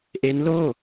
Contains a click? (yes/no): no